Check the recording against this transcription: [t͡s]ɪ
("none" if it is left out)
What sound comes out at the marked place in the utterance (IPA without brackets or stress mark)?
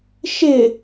ʃ